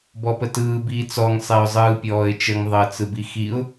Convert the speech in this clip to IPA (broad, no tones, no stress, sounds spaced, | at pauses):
b ɔ p ə t ɯː b iː t͡s ɔ ŋ sˤ e ʊ̯ zˤ ɯː pʲ ɔː ɪ̯ t͡ʃ ə ŋ ðˤ əː t͡s ɯ b i x i ʊ̯